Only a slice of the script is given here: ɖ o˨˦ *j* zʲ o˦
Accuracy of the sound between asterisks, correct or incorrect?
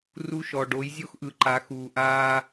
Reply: correct